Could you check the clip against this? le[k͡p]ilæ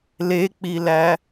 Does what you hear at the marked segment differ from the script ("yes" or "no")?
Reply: no